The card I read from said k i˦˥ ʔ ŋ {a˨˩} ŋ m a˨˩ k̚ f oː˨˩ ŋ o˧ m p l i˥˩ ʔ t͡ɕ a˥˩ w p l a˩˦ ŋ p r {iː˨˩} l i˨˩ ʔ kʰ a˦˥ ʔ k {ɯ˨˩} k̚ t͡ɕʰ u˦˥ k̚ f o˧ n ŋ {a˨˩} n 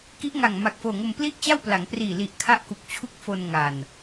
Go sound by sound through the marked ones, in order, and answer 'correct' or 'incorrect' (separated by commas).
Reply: correct, correct, incorrect, correct